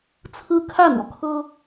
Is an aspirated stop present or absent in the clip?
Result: present